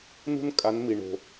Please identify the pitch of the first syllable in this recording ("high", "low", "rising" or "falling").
high